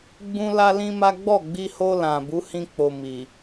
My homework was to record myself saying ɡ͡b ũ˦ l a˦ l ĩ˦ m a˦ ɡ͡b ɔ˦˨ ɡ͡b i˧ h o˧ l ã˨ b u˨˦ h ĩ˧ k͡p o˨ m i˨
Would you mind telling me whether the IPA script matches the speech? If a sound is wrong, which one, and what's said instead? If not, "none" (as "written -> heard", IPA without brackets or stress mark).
none